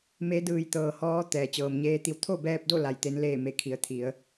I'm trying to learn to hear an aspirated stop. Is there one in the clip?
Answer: yes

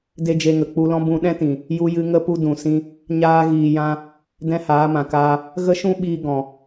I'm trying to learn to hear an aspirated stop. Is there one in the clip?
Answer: no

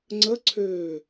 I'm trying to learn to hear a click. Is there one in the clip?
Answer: yes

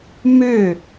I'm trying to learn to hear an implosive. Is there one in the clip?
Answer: no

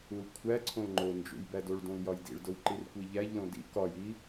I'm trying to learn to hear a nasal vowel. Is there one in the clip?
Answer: yes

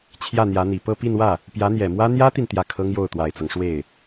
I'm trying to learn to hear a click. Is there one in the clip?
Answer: no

